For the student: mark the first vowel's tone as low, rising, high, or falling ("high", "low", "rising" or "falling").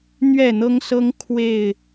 falling